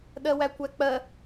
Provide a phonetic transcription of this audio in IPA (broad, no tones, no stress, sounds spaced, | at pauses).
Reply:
ɗ ɜ w æ kʷ æ k͡p ɜ